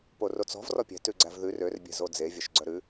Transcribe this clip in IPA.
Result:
p o r o t͡s ɔ̤ v r ɔ pʲ ɛ̤ t ʉ ɡ͡ǀ æ v ð ʉ r ø r bʲ ɛ̤ z o d͡z e vʲ œ ʃ ɡ͡ǀ œ ɾ ʉ

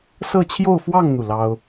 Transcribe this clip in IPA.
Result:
s ɤ˥˧ t͡ɕʰ j o˥˧ ʊ̯ f w ɑ˥˧ ŋ n̪ u˥˩ l ɑ˥ ʊ̯

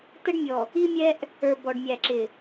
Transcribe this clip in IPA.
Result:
t ə˦ ɖ mʲ ɔ˨ | i˦ mʲ ɛ˦ ʔ | ə˞˨ b ɔ˨ ɖ mʲ æ˨ ǁ ɪ˨

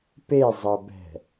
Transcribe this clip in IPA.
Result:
p e zˤ ɤ b ɛ̤

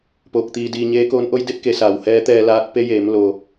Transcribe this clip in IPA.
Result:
p oː˧ k̚ t̪ iː˧ d iː˧ ɲ eː˧˥ k oː˧˥ n ʔ o˧˥ j d e˧˥ p̚ k e˩˧ s aː˩ w h ɛː˧˥ t̪ ɛː˧ l aː˧˥ t̚ p e˧˥ j eː˩˧ m l o˩

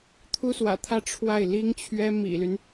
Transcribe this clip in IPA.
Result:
t̪ʰ u˥ s w ä̰˨˩ t̪ʰ ä˥˧ ʈ͡ʂʰ w a˥˩ ɪ̯ l i˥ ŋ t͡ɕʰ ɥ ɛ˥ m ḭ˨˩ l y˦ n

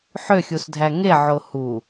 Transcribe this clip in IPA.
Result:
ħ ø xʲ u s dʱ æ ŋ e ʕ o h u

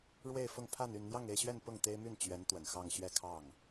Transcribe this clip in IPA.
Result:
ɻ w e˥˧ ɪ̯ f ʊ˥˧ ŋ pʰ a˥˧ n y˥˧ n n̪ j ɑ˥˧ ŋ e˥˧ ɪ̯ ɕ ɥ ɛ˥˧ n p ʊ˥˩ ŋ t̪ e˥ ɪ̯ m y˥˩ n t͡ɕ ɥ ɛ˧˥ n t̪ w ə˨˩ n x ɑ˥˧ ŋ ɕ ɥ ɛ˥˧ kʰ ɑ˥˩ ŋ

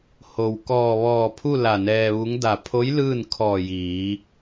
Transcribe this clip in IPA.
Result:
h o˩ w k ɔː˧˩ ʋ ɔː˧˩ pʰ u˥˨ l a˧˩ n ɛː˧ ʋ u˧˥ ŋ d a˧˩ pʰ o˧˥ j l ɯː˥˨ n kʰ ɔː˧˩ j iː˩˧

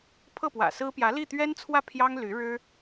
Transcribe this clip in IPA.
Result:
pʰ ɤ˥˩ p w ä̰˨˩ s ɹ̩˥ p j ä˧˥ l i˥˩ t̪ ɥ ɛ˥ n t͡sʰ w ä˥˩ pʰ j ɑ˥ ŋ l y˧˥ ɻ ɻ̩˥

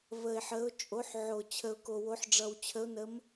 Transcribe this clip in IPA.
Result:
v ə˨˩ ɪ̯ ħ ə˨˦ ʊ̯ t͡ʃʼ o˨˦ ħ ʕ o˨˩ t͡ɕʰ ə˨˩ ʊ̯ k o˨˩ w o˨˦ ħ ɖ͡ʐ ʌ˨˩ w t͡ɕʰ ə˨˦ ʊ̯ n ə˨˦ m

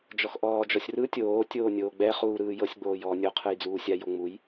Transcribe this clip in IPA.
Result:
d͡ʒ ɔ x ʔ ɔː d͡ʒ ɔ sʲ r ɯ tʲ oː tʲ oː nʲ oː ɡ͡b ɛ χ uː ɾ ɯː j ɤ sʲ ɡ͡b oː j ɔː nʲ o qʰ ɯ j d͡z uː sʲ a j o ŋ͡m u j

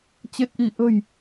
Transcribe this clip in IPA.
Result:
t͡ɕ e˨˩ t̚ ʔ i˧˩ ʔ ə̤˨˩ j

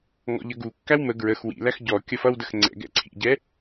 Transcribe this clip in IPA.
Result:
ŋ ɔ̰ ʎ ə ɡ u kː æ w m ə ɡ ɹ ə x w ḭ l æ x ɟ ɔ kʲ ʌ f ʌ w d ə x ŋ͡ǀ ɛ̰ ɡ ɛ̰ ǀʰ ḭ ɟ ɛ

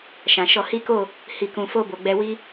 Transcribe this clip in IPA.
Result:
ʃ ã˨ ʃ ɔ˧ h i˦ k o˦˨ | h i˨ k ũ˨ f o˧ b o˨ ɡ͡b ɛ˧ w i˦

